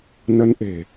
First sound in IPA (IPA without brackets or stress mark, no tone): n